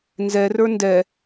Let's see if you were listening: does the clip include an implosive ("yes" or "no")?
no